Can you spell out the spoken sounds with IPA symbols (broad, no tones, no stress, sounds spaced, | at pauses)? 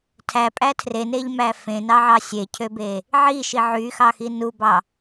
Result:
tʰ æ pʼ æ tʰ r e n e ʎ m æ f ẽ n ɑ ʕ ɑ sʲ e cʰ ø b e | ʕ i ʃ i ʕ y x ɑ x i n u b ɑ